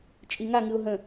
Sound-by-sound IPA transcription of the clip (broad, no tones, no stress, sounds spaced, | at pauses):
t͡ʃʼ i ŋ a ŋ ɨ ʊ̯ ɦ ə̃